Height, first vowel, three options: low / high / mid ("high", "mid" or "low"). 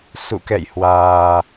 high